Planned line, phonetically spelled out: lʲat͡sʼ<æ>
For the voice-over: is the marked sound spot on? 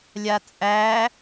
yes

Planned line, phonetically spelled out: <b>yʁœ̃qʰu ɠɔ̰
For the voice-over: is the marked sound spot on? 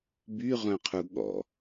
yes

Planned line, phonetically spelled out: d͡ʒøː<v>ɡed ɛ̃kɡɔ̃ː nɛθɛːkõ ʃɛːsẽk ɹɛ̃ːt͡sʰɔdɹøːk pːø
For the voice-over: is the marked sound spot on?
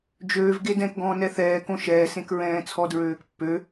yes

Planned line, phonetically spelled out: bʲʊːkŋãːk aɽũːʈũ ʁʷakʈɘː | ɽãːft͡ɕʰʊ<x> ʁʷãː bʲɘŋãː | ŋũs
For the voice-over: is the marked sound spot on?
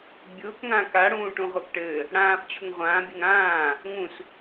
no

